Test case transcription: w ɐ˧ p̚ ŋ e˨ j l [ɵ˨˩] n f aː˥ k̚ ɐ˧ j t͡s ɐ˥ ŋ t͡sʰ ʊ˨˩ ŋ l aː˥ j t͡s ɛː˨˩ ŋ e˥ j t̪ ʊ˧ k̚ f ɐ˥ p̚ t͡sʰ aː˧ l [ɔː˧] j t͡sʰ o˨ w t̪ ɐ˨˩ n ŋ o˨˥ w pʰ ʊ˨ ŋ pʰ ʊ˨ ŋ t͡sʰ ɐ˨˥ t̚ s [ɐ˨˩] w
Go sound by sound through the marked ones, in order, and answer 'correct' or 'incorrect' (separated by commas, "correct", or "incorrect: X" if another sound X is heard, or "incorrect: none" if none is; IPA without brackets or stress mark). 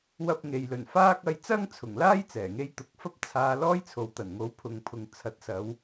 correct, incorrect: ɔː˥, incorrect: ɐ˨˧